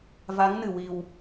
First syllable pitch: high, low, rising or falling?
rising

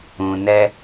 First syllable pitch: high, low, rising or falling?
low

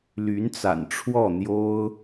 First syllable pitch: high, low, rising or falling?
rising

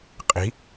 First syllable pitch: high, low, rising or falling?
rising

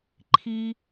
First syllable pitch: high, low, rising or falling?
low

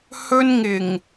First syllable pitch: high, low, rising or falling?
high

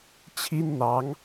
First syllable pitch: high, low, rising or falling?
high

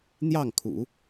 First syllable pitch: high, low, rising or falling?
falling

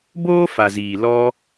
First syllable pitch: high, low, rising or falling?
high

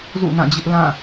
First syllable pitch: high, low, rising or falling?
falling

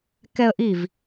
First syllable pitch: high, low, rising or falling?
high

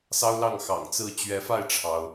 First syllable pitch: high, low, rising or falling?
high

